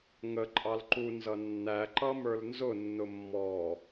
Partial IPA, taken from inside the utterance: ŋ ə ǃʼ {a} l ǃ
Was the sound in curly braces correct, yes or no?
no